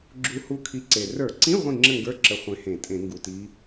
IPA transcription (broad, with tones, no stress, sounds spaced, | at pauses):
ɡ͡ǁ u˧˥ h u˧˥ kʰ i˧ ǀ e˨˩ r ə˞˧˩˧ ǀ ĩ˧˥˧ ʁʷ ĩ˥˨ ŋ͡ǁ ə˥˨ ŋ ɡ ə˞˧˥˧ ǁ ə˧ χʷ ẽ˧ h ẽ˧˩˧ tʼ ẽ˧˩˧ ŋ ɡ u˨˩ t i˧˥